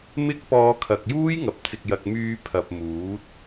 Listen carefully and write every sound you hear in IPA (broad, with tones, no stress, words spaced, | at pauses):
mɪ˥k̚pɔː˧ kʰɐ˨k̚juː˥jŋɐ˨p̚ t͡sɪ˨k̚jɐ˨k̚ myː˧pʰɐ˨p̚muː˨˥t̚